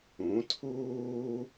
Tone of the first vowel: rising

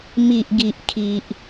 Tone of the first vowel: low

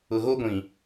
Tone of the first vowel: low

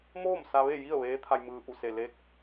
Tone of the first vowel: falling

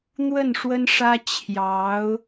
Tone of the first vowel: falling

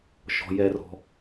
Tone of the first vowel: low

